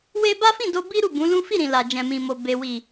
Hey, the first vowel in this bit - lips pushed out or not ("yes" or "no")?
no